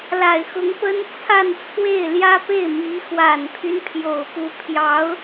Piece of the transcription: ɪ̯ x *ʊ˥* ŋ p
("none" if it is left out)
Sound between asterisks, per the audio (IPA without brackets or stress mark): ʊ˧˥